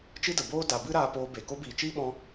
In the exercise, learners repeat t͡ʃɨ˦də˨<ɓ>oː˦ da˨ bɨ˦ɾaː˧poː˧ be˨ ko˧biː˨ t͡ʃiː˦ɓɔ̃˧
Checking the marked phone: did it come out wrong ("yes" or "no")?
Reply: yes